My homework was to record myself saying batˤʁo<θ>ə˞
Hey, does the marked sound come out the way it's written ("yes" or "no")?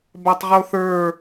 yes